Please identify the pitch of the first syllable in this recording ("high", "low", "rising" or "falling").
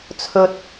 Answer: high